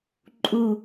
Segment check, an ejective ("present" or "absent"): present